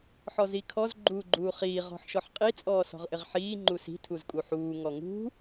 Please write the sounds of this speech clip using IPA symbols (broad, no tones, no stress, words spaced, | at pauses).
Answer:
ħɔzikʰɔz ɡ͡ǃuːɡ͡ǃuːχiː ʁɔ̤ħʃɔħqʼi t͡sʼɔːsɔ̤ʁʔɪʁħiː ŋ͡ǃusi̤ tʰuzkʼuħuː ŋɔŋṳ